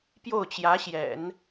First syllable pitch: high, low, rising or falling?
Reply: falling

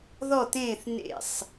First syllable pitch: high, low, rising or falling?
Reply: falling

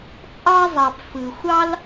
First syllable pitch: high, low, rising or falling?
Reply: high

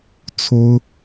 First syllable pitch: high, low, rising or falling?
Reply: high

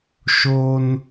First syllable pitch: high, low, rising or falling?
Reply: high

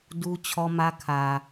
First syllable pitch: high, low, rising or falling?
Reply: high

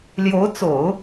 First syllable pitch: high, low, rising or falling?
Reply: rising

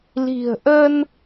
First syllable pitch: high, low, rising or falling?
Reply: low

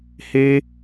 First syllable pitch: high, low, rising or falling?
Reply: high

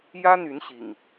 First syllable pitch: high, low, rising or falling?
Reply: high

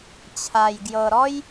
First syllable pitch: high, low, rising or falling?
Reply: low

